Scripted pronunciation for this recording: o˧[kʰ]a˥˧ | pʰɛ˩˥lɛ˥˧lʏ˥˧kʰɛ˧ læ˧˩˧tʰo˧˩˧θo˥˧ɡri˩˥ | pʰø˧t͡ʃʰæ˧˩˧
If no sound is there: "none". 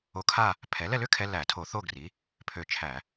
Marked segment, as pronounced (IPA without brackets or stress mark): kʰ